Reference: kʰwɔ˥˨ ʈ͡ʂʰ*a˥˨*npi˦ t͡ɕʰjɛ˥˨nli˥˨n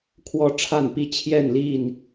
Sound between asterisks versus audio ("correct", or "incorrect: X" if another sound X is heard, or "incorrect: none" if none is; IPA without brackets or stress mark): correct